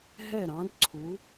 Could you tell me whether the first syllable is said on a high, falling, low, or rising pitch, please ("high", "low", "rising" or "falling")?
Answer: falling